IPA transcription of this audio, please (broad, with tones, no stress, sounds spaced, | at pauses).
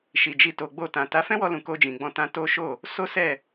ʃ i˨ d͡ʒ i˧ t o˨ ɡ͡b o˧ t ã˨ t a˨˦ f ɛ̃˦ w ɔ˧ l ũ˨ k o˧ d͡ʒ ĩ˨ ɡ͡b ɔ̃˧ t ã˧ t o˦ ʃ o˦˨ | s o˦ s ɛ˦˨